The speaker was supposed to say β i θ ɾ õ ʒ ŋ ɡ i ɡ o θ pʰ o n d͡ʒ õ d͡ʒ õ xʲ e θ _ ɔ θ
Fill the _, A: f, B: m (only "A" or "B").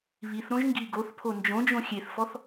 A